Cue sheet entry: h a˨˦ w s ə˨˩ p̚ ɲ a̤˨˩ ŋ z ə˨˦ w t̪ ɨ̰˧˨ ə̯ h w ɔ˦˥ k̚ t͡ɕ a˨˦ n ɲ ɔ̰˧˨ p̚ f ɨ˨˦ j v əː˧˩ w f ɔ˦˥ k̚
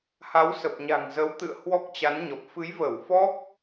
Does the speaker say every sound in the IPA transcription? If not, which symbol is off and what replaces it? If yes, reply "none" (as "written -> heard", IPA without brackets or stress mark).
ɔ̰˧˨ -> ɔ˨˩